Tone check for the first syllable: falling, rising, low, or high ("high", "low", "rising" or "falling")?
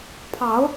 rising